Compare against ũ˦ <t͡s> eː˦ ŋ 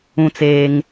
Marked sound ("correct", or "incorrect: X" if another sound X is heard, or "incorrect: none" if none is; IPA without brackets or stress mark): correct